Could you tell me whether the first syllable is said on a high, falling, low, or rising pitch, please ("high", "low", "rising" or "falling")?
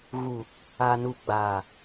low